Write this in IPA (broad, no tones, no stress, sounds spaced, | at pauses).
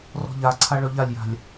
r ɔ̤ ʎ a ǀʰ a ɭ œ ʎ a lʲ j a̤ lʲ